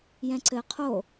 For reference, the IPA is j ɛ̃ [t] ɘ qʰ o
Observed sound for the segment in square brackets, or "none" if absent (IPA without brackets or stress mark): ǀ